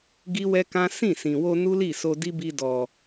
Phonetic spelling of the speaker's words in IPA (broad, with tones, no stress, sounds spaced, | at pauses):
ɡ i˦ w ɛ˦ k ã˦ s ĩ˦˨ s ĩ˨ w o˧ n u˦ l i˦˨ s o˧ d i˦ b i˧ d ɔ˨